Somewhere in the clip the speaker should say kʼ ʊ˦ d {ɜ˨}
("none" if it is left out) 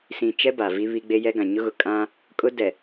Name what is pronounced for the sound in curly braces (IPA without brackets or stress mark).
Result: ɛ˨